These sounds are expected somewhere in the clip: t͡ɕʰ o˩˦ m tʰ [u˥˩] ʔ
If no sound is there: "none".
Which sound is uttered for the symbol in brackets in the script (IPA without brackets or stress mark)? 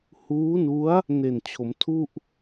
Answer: u˥˩